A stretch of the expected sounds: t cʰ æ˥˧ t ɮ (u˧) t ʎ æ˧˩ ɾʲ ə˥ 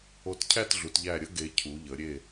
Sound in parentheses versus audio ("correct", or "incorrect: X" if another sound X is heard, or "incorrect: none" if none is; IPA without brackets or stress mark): incorrect: u˩˧